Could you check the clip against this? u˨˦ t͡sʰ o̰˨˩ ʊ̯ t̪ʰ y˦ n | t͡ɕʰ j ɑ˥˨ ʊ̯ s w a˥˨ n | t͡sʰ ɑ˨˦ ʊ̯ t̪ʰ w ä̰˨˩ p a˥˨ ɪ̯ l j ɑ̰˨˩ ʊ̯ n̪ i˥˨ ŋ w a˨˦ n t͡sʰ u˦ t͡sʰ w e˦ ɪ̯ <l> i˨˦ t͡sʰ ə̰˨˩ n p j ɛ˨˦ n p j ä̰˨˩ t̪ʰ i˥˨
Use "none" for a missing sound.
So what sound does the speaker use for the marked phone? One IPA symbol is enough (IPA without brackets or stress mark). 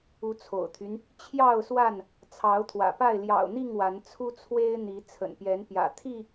n̪